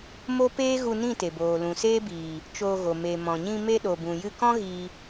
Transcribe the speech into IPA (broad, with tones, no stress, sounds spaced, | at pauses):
m o˦ p eː˦ ɣ u˧ n ĩ˦˨ t e˨ b oː˨ l ũ˨ s eː˦ b iː˨ | t͡ʃ oː˧ ɣ o˨ m e˨ m ɔ̃˨ ɲ ĩ˧ m e˧ ɗ o˨ b ũ˨ j ɨ˧ k ɔ̃˦ ɣ iː˧